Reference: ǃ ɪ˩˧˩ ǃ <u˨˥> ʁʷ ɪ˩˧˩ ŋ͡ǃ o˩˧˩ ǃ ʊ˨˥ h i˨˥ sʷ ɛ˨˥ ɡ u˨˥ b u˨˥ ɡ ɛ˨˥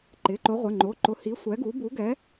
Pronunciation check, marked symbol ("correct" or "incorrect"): incorrect